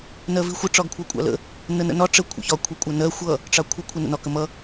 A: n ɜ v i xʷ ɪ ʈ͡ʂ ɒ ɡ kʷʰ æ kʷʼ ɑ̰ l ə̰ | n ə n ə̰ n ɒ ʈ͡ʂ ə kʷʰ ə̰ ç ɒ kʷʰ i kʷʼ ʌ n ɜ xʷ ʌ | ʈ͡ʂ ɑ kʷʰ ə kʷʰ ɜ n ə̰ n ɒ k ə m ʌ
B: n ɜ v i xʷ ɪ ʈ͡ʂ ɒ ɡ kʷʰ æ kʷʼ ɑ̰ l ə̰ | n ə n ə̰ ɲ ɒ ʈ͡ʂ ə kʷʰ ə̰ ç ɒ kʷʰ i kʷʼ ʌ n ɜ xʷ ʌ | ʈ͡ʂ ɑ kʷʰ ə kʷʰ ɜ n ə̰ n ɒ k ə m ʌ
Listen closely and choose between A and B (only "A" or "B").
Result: A